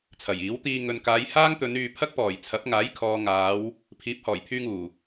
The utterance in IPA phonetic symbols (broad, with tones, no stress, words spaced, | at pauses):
t͡sʰɐ˨˩jiː˨˥wt̪iː˧ ŋɵ˨nkaː˨˧j haː˥ŋt̪ɵ˨˧n yː˨pʰɐ˥k̚pɔː˨˩j t͡sʰɐ˨˥p̚ŋaː˨˥jkʰɔː˨ ŋaː˨˧w | pʰiː˨˥p̚hɔː˨˩jpʰyː˧ŋuː˨˩